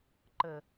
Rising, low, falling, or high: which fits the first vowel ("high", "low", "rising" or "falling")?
low